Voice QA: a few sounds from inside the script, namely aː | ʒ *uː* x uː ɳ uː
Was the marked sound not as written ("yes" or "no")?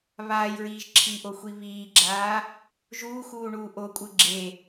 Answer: no